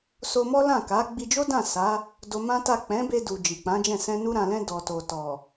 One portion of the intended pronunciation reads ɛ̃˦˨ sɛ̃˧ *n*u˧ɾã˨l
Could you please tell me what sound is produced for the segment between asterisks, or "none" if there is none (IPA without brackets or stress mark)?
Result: n